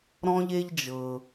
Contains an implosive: no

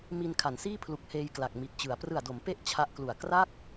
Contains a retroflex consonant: no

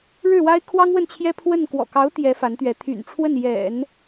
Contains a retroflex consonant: yes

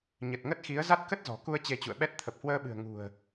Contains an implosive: yes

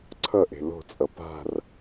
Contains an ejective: yes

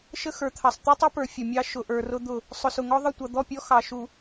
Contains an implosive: no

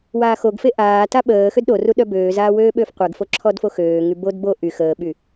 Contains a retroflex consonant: no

